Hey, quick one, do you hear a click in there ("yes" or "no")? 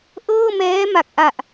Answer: no